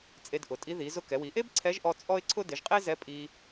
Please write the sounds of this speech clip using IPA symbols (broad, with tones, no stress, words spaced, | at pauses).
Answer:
t͡sʼe˧dʔʊ˩˧tʼi˧˥ ði˩˧zʊ˧ kɛ˩˧wi˩˧ʔe˥b ǀʰɛ˧˥ʒʔɔ˧ t͡sʼɔ˥ɪ̯ǀʰʊ˥ dɪ˩˧ʒqʼe˥zɛ˧˥ pʼi˧